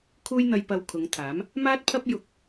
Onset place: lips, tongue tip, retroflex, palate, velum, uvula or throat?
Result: velum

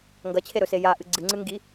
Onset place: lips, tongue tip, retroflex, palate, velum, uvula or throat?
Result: velum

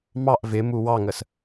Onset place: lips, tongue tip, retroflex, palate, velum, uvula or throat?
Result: lips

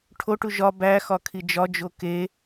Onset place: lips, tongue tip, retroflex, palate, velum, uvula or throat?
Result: retroflex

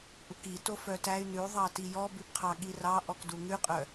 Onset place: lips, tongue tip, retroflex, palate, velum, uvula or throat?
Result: throat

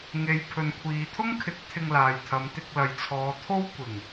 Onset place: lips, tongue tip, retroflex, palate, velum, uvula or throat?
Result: velum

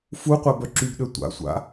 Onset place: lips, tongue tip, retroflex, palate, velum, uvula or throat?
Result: lips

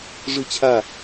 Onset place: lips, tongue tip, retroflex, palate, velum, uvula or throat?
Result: retroflex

